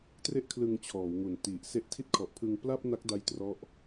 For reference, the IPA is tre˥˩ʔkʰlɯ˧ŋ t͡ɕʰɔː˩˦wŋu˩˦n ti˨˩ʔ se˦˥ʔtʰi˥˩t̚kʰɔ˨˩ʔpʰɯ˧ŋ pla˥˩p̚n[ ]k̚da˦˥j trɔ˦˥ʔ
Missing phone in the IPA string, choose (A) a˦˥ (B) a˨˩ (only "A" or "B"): A